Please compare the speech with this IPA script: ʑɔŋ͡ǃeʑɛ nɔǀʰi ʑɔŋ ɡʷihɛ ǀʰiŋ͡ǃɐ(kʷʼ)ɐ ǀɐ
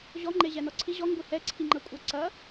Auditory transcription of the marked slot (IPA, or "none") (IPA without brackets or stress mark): kʷʼ